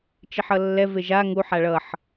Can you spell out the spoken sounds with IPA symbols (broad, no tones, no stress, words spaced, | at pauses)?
t͡ʃiħʌlːɛ veʒa ŋu ħaɭʌħ